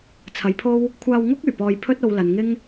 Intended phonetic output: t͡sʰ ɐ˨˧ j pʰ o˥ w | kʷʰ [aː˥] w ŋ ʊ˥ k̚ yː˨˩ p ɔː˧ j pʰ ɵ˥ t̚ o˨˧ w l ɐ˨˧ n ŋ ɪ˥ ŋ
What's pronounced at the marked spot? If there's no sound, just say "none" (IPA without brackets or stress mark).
aː˧